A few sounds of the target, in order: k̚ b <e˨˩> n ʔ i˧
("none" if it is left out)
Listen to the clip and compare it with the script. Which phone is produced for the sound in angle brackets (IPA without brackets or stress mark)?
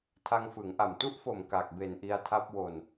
e˨˩